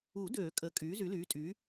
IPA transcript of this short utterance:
u˨˩˦ d øː˨˩˦ kʼ ə˩˥ kʼ yː˩˥ z y˩˥ l yː˩˥ tʼ y˩˥

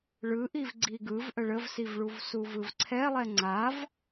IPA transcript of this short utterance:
ɭ ɯ ʔ i v ɡ͡ǀ i ɡ ɯ v ʔ ə ɭ ə v s i v ɭ u v s u v ɯ v ǀʰ ɛ lˠ ɛ ŋ͡ǀ a v

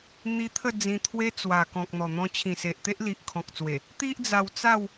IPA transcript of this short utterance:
n̪ i˧ t̪ʰ ə˥˧ d͡z ĩ˧ t̪ʰ w e˦ t͡s w a˨˩ k ɔ̃˨ k̚ n̪ ɔ˨˩ n̪ ɔ̃˧ t͡ɕʰ ĩ˨˩ s e˨ ʔ t̪ e˦ ʔ l i˨ ʔ kʰ ɔ̃˨ k̚ t͡s w e˨˩ | t̪ i˦ ʔ d͡z a˧ w t͡s a˥˧ w

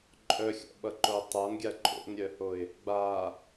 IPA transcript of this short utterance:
ǃʼ œ xʲ ɔ̰ ɓ ʌ ǃ o tˤ a n ɡʲ a ǃʼ o̰ n ɾʲ œ h o ɪ̯ | ɡ͡b a

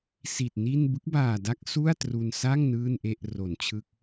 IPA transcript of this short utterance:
s i˨˩ t̚ n i˥˩ n b ɯ˦˥ k̚ b aː˨˩ d a˦˥ k̚ s u˥˩ a̯ t r u˧ n s a˥˩ ŋ n ɯː˥˩ n ʔ e˥˩ ʔ r o˩˦ n t͡ɕʰ ɯ˦˥ k̚

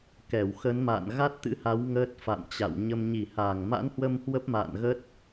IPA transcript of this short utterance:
k ɛ˧˩ w x ə˨˦ n m a̰ː˧˨ n ɣ a˦˥ t̚ t̪ ɨ̰˧˥ h a˨˦ w ŋ əː˦˥ t̚ f a̰˧˨ m t͡ɕ a̰˧˨ w ɲ ə˧ m ɲ i˧˩ h aː˧˩ ŋ m a̰˧˥ n h w ə˧ m h w ə˦˥ p̚ m a̰ː˧˨ n ɣ ə˦˥ t̚

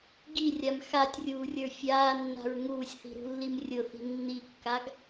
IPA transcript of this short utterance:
ɡ i rʲ a m x a tʲ rʲ uː rʲ ə˞ fʲ aː nː a̤ ɹ ŋ uː sʲ θ i̤ ɾ ṳ lː i m rʲ ʊ θ i̤ nː i kː a ɡ

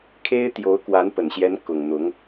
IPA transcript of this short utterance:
kʰ e˥ ɪ̯ t̪ j o˧˥ ʊ̯ k w a˧˥ n p ə˨˩ n ɕ j ɛ˧˥ n k ʊ˨˩ ŋ n̪ ʊ˧˥ ŋ

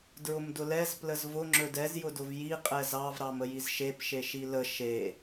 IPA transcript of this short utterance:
d ɹ ʊ m d ʊ l ɛ z p l ə z v ʊ ŋ͡ǁ ɵ d ɛ z j ʊ d ʊ v j i qʼ ɛ z ɑ v ɾ ɑ m ə j i z ʃ e p ʃ e ʃ i l ə ʃ e

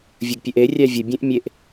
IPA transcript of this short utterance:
vʲ ə ɡ pʲ ø ʔ e rʲ æ vʲ ə bʲ ẽ ʔ mʲ e ʔ

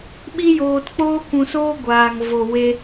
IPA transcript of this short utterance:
ɓ i˦ j oː˧ t k͡p oː˦ kʷ ũ˨ s oː˧ ɡʷ aː˨ ŋ v o˨ w e˧

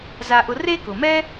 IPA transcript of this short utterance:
z a˧ ʔ ʊ˧ r e˥ k ʊ˩ m ɛ˥

